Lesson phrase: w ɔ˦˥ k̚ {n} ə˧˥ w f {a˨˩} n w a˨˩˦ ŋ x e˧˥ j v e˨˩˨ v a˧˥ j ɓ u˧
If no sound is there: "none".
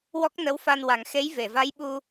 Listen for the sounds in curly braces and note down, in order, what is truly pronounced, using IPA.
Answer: n, a˧

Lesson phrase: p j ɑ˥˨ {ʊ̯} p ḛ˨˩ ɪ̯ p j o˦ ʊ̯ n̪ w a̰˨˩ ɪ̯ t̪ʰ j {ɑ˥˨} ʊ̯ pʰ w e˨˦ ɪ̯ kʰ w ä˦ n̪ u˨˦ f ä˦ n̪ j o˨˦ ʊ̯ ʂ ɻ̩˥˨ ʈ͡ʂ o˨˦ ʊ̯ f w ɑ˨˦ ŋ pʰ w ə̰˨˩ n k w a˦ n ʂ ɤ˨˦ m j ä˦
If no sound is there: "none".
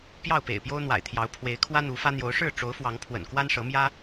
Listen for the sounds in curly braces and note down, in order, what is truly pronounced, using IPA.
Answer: ʊ̯, ɑ˨˦

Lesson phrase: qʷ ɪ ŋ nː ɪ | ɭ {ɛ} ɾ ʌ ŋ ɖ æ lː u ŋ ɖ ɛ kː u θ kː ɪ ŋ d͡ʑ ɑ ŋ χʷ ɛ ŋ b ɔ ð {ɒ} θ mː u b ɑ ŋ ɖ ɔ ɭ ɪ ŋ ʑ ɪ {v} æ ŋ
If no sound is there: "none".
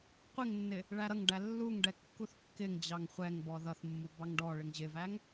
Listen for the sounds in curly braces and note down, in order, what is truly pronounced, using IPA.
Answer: æ, ʌ, v

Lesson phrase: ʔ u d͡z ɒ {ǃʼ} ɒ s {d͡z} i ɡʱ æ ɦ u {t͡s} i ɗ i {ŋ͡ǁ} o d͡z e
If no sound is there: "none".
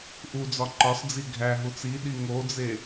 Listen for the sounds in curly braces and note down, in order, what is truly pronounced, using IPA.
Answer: ǃ, d͡z, t͡s, ŋ

